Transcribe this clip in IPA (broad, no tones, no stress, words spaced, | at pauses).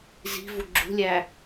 zi̤vu ɡ͡ǁṳlʲæ